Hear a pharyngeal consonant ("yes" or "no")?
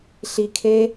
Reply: no